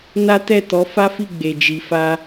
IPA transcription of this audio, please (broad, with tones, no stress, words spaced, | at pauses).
na˦tɛ˦˨tɔ˨˦ fa˦fi˦˨ ɡ͡be˨d͡ʒi˨fa˧